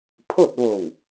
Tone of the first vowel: falling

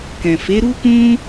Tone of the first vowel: low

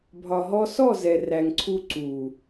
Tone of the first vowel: low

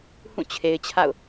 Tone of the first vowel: falling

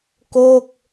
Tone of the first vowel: falling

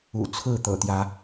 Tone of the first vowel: low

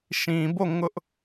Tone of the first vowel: low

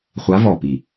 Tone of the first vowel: rising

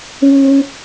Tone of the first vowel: high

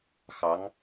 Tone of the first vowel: rising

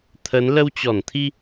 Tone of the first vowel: rising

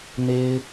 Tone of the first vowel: high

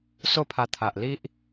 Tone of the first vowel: falling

